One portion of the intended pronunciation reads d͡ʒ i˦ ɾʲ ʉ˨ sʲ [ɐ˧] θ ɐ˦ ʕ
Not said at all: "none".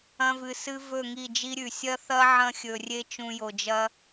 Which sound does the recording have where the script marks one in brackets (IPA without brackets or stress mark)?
ɐ˦